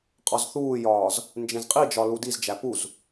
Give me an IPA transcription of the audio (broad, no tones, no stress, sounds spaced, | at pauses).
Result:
qʼ ɒ z θ uː j ɒː z | n d͡ʒ ẽ z qʼ i d͡ʒ ɒ l u d i z d͡ʒ æ p u z